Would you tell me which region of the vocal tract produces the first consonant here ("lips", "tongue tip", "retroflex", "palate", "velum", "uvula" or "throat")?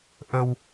throat